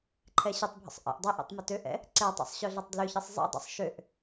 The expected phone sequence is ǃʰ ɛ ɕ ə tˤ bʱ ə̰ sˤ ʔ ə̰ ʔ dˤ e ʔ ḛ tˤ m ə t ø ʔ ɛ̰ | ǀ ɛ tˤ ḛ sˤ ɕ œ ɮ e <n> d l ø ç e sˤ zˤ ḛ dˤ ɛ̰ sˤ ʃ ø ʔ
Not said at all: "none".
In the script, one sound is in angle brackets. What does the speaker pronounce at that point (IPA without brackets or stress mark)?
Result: tˤ